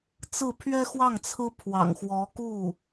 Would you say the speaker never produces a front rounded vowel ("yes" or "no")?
yes